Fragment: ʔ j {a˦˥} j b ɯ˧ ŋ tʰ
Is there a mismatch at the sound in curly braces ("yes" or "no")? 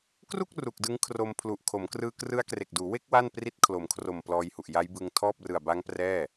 no